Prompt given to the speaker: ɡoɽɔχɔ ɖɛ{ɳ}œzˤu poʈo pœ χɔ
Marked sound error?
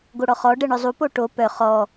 no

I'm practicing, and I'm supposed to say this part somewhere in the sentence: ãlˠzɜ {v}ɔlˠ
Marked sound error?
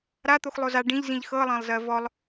no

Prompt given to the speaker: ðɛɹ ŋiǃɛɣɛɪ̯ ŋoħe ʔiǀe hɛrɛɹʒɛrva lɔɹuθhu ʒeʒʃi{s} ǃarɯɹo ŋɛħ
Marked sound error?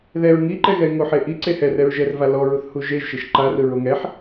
yes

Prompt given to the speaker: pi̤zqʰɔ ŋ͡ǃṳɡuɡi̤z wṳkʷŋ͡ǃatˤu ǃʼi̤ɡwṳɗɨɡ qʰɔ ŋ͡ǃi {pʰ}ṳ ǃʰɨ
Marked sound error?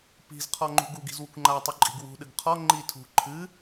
yes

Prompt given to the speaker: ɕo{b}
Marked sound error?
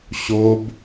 no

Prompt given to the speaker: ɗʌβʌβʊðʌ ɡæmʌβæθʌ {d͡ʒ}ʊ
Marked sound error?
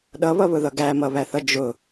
no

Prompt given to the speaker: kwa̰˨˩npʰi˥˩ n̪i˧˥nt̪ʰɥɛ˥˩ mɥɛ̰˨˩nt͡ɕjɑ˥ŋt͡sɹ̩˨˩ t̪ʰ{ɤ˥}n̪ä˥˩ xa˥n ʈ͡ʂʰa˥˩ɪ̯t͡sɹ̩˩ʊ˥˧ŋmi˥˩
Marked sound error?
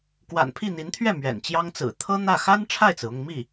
no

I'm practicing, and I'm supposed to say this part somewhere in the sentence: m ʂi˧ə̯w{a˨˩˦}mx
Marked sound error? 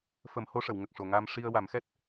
no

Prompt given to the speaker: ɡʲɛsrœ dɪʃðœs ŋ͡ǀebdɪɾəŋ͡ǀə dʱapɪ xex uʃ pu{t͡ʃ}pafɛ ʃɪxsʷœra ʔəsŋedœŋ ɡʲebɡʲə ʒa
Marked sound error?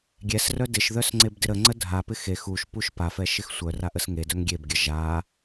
yes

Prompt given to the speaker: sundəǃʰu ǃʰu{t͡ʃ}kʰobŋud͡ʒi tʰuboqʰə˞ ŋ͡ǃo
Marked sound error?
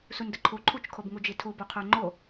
no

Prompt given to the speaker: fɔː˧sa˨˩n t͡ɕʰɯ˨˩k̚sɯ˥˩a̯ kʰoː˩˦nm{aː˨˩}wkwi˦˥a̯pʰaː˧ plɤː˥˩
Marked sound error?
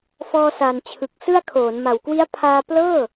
yes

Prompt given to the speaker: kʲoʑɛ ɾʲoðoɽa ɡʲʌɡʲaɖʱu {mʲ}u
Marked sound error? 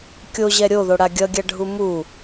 yes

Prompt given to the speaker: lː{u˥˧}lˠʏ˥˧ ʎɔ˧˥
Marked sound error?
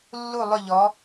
no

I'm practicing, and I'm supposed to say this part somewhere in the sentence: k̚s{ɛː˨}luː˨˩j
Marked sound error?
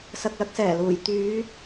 yes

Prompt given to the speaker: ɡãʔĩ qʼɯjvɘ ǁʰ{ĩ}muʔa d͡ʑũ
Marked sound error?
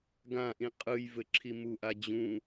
yes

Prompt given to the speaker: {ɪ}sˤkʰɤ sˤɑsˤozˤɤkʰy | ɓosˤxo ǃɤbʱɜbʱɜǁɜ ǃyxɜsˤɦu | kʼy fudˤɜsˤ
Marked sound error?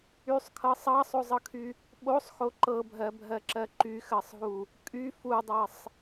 yes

